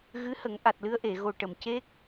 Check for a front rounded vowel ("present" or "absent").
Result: absent